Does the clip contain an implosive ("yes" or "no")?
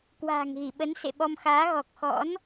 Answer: yes